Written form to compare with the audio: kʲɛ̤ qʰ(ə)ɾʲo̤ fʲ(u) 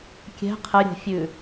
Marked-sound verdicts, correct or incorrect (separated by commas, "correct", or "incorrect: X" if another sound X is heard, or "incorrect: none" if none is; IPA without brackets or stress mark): correct, incorrect: ʉ